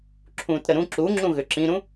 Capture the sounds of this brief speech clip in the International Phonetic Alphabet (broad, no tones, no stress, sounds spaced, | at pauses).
ǁʰ ũ t ɾ ə ɾ ũ ǁ u ŋ͡ǁ ũ ɣ ʏ ǁ ĩ ɾ ũ